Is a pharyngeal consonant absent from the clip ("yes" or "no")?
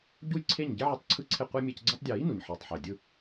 no